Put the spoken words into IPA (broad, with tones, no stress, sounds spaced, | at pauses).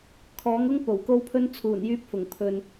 kʰ ɔː˨˥ ŋ ʊ˥ ŋ p o˨˩ w k o˥ w pʰ ɵ˥ n t͡sʰ uː˨˩ n j yː˧ p̚ f ʊ˨˩ ŋ pʰ ɵ˨ n